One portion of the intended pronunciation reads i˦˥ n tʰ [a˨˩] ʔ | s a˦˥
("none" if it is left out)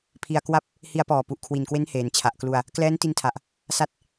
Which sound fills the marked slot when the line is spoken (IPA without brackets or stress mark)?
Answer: a˨˩